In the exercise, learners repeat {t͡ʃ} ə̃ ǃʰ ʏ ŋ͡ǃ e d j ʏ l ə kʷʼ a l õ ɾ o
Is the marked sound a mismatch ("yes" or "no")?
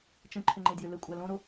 no